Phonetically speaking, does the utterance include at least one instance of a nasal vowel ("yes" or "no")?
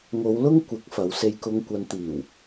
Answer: no